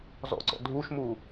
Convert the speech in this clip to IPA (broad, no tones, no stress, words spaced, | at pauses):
zɔ̰ǀɔ̰ dʱuʃmu